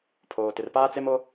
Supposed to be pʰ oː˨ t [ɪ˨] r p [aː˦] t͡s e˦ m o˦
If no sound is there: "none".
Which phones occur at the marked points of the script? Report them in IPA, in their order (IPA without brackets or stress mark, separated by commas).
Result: ɪ˨, aː˦